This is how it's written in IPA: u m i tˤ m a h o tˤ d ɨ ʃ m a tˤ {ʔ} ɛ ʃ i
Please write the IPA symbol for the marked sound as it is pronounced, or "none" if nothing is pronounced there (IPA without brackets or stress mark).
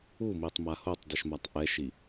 ʔ